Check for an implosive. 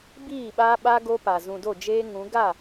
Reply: present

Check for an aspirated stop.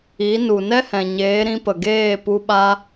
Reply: absent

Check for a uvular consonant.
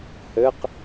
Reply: present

